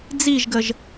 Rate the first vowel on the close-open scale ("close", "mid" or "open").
close